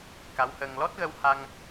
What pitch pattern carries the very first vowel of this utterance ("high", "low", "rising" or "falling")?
rising